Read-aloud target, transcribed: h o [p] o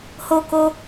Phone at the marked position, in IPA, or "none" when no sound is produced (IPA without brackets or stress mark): k